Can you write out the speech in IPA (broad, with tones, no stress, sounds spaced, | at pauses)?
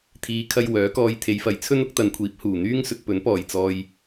t̪ʰ iː˨˧ kʰ ɐ˧ j w œː˨˥ k ɔː˧ j t̪ʰ e˨˧ j f ɐ˨˧ j t͡sʰ ɵ˥ n ʊ˨˥ k̚ t̪ ɐ˨ n kʷʰ iː˨˥ p̚ h uː˨˩ n̪ yː˥ ŋ s ɵ˧ t̚ p ɵ˨˥ n p ɔː˨˩ j t͡s ɔː˨ j